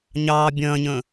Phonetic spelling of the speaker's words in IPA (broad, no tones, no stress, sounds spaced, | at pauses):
ɲ ɑː bʲ ɐ̃ː ɲ ə̃ː